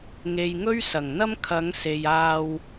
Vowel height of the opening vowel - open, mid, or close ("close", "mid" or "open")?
mid